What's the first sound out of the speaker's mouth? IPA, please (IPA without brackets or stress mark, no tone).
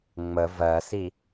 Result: ŋ͡m